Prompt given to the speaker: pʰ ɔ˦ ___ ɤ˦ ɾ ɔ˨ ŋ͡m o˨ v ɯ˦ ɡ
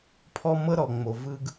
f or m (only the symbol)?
m